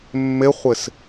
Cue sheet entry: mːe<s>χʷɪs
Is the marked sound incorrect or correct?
incorrect